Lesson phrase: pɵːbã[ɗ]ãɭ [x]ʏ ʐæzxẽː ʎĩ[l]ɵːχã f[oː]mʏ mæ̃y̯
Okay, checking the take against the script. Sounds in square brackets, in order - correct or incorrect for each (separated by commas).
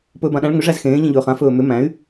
correct, incorrect, incorrect, incorrect